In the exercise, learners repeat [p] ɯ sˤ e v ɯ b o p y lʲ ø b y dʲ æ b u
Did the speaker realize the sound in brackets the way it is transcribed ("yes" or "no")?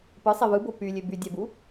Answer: yes